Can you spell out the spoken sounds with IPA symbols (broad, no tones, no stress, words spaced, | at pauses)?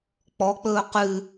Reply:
k͡pɔk͡pɵː qʉ